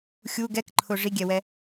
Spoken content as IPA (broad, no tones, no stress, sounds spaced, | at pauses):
xʲ u ɡ ɛ k ǃʰ ʊ ʐ i ɡʲ ɛ w ɛ